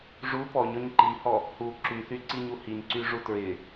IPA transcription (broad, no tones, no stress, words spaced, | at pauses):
ʐu pɔɲɔɲ ǃihɔ | hu ǁyθyǀiɲu hiɲǀyʐu tɹɪ